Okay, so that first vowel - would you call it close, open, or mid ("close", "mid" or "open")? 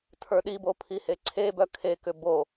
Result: mid